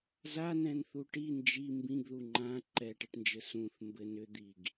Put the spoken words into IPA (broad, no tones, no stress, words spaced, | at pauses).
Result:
zanɛ̃nθu ʈi nd͡ʒi mbĩɡðu ŋ͡ǃã ǃɛʈɛʈnd͡ʒɘ sũθ mbɘn ʏd̪iɡ